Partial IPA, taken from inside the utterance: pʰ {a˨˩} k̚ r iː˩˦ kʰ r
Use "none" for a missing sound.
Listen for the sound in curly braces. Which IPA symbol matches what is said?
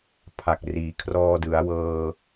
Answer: a˨˩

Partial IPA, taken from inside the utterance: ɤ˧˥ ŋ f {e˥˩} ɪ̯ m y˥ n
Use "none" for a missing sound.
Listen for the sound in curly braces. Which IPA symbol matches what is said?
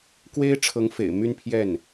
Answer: ḛ˨˩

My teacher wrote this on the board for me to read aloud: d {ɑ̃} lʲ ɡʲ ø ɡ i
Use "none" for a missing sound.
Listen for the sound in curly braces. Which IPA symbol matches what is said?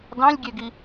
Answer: ɑ̃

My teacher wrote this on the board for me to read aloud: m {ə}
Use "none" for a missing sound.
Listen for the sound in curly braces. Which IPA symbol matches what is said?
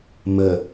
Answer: ə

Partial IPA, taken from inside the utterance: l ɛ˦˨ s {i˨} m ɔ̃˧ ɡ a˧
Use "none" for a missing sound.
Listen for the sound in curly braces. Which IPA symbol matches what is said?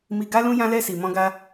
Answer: i˨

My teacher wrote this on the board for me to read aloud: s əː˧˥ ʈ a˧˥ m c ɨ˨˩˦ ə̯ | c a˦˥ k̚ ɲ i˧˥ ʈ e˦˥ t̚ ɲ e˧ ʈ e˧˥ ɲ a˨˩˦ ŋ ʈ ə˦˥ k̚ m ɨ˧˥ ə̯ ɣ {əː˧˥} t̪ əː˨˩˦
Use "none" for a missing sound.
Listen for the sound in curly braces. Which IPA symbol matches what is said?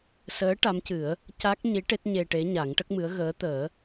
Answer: əː˧˥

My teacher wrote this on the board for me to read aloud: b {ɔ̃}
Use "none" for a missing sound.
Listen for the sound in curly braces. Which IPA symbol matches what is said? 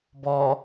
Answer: ɔ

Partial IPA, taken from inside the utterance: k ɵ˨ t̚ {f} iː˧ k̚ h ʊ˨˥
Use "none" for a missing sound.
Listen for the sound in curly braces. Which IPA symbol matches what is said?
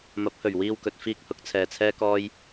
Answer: f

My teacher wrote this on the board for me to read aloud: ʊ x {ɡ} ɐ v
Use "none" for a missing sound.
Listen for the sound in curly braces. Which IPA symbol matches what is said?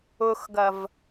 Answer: ɡ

